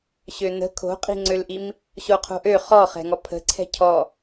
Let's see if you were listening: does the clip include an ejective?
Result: yes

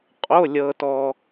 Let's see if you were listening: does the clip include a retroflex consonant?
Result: no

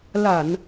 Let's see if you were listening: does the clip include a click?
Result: no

